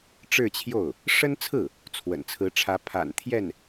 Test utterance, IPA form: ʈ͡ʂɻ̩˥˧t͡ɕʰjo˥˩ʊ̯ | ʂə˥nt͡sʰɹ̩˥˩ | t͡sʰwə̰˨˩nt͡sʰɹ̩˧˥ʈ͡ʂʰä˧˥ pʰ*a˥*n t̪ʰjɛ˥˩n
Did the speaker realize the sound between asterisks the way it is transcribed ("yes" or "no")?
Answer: no